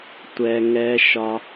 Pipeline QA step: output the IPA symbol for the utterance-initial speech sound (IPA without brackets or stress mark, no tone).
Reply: tʷ